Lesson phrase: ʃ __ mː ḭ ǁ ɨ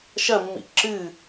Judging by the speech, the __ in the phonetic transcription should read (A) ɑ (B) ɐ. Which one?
B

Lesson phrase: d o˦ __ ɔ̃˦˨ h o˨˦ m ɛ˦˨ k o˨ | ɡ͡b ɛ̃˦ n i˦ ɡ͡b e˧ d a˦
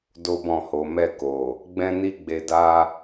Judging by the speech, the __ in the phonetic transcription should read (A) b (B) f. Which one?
A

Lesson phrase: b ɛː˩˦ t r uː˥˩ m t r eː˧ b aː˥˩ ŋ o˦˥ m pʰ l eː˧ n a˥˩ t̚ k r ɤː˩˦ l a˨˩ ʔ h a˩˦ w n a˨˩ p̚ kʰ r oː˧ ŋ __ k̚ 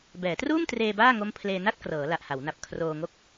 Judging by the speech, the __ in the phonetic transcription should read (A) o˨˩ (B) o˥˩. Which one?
B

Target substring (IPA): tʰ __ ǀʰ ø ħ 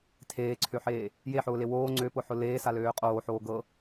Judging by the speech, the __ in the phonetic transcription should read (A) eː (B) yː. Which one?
A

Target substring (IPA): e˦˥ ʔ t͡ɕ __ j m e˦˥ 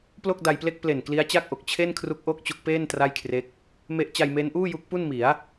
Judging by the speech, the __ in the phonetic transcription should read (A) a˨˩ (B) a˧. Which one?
B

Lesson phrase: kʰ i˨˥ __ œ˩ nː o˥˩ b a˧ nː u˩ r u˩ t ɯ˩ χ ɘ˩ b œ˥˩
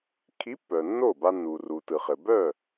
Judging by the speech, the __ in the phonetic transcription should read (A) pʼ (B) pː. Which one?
B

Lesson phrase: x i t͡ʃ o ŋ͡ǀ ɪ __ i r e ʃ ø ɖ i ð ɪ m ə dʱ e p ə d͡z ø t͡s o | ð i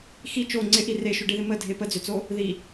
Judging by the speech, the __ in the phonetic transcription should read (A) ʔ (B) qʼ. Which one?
A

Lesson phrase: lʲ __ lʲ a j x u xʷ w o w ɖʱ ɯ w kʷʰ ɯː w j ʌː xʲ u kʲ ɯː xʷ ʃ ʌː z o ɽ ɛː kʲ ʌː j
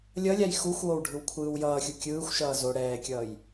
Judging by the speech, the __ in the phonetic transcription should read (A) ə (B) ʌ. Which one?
B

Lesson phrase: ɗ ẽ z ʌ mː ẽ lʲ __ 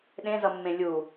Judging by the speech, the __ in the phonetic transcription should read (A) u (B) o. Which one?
A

